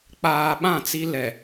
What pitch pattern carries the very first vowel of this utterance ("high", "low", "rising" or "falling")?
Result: low